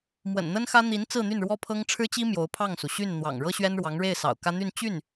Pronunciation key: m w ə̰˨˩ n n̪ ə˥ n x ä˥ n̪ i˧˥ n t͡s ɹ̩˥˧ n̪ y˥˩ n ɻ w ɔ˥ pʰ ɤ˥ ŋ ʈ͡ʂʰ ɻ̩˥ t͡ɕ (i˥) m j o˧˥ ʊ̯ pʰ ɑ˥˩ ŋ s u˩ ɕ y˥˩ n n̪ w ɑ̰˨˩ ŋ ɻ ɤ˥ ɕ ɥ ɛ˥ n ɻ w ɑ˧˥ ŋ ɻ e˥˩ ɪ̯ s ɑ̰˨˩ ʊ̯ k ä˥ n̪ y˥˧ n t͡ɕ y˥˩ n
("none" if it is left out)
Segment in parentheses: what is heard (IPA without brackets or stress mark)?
i˥